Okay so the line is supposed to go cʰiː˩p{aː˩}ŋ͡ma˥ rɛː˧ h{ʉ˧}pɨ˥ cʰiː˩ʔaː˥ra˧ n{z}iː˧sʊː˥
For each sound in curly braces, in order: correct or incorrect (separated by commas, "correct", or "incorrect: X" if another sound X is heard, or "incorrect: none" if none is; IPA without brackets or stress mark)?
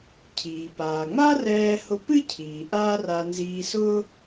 correct, incorrect: ʊ˧, correct